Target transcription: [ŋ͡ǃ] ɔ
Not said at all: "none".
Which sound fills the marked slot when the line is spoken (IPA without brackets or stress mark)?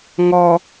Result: ŋ